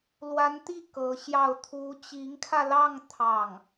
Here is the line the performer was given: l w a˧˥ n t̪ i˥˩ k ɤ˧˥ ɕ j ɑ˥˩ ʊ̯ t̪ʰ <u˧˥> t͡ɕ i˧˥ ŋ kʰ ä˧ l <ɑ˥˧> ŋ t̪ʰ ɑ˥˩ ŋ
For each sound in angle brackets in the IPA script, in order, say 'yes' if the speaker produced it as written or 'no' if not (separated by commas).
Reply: yes, yes